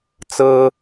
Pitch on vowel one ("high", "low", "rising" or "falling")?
high